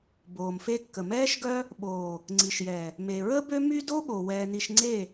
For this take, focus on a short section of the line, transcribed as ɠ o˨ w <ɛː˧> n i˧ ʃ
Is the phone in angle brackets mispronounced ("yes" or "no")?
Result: no